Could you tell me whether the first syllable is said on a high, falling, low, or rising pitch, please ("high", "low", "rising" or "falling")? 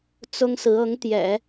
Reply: high